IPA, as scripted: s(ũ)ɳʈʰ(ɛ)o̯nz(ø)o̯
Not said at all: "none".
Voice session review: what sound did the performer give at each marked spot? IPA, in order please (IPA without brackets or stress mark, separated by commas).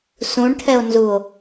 ũ, ɛ, u